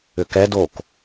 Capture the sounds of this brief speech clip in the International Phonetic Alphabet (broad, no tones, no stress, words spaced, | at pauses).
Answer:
ʏkɛ dok